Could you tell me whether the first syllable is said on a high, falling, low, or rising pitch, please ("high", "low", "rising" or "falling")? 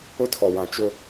high